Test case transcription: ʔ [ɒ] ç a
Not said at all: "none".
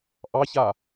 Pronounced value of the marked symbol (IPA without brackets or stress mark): ɑ